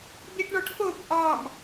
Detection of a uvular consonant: absent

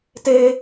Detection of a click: absent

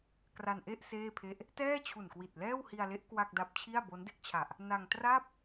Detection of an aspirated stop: present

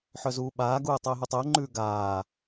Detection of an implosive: present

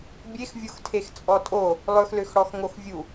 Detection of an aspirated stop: present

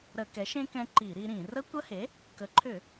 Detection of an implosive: absent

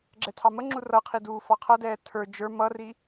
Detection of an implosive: absent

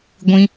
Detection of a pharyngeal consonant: absent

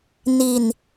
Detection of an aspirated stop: absent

